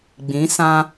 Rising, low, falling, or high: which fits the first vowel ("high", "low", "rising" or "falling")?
rising